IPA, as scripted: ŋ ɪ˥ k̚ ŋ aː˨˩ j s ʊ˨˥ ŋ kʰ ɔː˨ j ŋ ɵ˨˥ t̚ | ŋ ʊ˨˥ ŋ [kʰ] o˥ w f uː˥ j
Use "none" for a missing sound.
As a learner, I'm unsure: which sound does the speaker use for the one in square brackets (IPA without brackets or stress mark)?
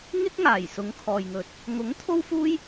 t̪ʰ